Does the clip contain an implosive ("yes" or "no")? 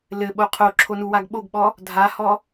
yes